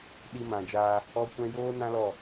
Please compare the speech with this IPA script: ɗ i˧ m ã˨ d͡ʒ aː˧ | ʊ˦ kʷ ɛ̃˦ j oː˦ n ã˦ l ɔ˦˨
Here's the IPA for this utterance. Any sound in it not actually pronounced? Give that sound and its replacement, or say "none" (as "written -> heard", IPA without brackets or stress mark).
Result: ʊ˦ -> ɔ˦